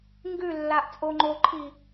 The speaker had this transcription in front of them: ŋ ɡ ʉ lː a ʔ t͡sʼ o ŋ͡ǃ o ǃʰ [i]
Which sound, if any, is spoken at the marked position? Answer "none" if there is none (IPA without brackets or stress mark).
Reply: i